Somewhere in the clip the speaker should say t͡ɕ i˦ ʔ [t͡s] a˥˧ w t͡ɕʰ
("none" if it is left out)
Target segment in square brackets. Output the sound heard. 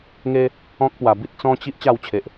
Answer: t͡ɕ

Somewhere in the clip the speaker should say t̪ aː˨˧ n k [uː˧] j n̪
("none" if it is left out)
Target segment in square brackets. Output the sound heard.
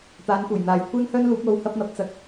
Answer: uː˨˩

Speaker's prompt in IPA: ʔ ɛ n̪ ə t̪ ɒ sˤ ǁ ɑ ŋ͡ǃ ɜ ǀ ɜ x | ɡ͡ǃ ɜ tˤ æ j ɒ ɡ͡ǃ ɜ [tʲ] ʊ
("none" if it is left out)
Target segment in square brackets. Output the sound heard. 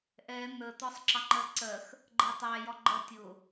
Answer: tʲ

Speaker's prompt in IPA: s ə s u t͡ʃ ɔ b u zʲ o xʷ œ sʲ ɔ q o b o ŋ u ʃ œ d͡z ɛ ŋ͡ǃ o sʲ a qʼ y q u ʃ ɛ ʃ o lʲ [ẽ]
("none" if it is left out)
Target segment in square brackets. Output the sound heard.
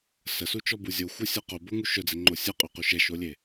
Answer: e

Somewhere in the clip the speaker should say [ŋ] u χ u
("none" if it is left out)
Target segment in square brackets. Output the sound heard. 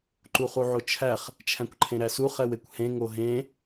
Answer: ǃ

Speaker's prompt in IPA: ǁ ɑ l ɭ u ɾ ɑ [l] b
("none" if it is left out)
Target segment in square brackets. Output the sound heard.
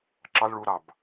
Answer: none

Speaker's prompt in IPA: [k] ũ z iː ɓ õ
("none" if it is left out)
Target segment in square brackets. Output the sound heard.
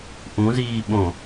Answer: ʔ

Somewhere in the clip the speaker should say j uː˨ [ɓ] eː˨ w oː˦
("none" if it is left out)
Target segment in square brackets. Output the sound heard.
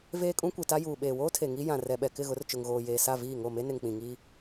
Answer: ɓ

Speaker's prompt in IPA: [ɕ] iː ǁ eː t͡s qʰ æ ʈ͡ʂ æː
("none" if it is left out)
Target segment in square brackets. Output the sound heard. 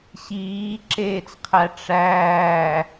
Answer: ɕ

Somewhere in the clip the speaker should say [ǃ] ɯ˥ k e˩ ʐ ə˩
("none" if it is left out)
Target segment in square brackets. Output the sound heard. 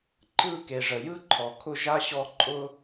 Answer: ǃ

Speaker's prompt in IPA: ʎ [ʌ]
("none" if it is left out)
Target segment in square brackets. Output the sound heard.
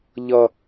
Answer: ʌ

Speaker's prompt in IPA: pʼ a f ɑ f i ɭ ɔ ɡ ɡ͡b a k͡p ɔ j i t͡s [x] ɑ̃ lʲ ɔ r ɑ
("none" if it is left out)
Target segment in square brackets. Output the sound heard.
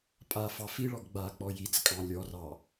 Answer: kʼ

